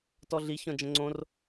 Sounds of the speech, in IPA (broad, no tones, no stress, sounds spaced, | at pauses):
t ɔ ɮ i ç ɔ̃ d͡ʒ ə̃ ŋ͡ǀ õ r